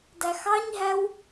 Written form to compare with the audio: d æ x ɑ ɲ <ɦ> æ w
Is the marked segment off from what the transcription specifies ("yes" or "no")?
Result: no